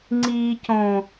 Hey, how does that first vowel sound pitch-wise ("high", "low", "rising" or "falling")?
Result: low